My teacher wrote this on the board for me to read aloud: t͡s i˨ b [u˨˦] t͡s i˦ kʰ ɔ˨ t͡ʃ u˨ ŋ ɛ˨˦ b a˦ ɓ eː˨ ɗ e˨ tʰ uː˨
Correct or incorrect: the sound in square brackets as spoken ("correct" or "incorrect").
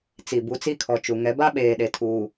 correct